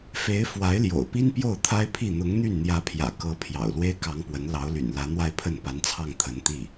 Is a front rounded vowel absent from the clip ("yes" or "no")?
no